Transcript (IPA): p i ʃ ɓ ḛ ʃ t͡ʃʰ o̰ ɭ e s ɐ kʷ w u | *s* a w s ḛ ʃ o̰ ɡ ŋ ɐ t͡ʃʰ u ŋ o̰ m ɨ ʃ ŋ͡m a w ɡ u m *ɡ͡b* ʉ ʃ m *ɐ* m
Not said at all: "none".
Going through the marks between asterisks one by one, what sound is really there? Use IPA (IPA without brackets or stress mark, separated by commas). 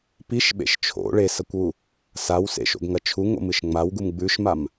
s, ɡ͡b, a